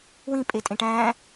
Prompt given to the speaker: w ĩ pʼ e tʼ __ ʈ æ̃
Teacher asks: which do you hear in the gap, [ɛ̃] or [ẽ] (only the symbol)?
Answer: ẽ